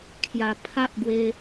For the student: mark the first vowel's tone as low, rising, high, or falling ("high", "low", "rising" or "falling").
low